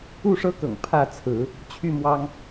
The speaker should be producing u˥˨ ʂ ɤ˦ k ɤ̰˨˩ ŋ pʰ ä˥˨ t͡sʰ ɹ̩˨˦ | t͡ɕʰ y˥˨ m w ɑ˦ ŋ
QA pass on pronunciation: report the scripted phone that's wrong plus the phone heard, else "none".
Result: none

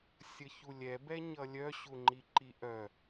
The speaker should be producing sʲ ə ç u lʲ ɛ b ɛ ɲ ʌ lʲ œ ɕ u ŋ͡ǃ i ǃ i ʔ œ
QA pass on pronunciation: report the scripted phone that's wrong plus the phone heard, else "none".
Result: none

